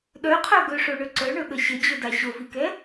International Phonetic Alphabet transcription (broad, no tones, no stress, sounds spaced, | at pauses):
ɗ œ qʰ œ ɡ ɵ ʂ o ɳ ɵ ǀ œ ɳ ɵ ɠ ə ɕ ə d͡ʑ ɵ d a ɕ o v i k ɛ